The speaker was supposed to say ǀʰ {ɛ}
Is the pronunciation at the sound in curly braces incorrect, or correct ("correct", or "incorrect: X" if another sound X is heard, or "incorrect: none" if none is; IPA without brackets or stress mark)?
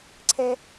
correct